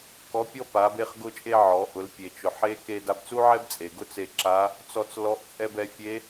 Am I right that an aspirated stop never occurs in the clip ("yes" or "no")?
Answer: yes